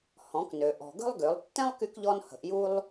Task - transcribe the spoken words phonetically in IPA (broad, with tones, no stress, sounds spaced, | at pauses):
h ɔ̃˩˧ k n ø˩ ʔ ɔ̤˩ ɡ ə̤˥ lˠ ɡ ø˩˧ lˠ tː ɛ̃˥ lˠ k y˧ k ʎ ɔ˧ n h ə̤˩˧ ʔ j u˥ lˠ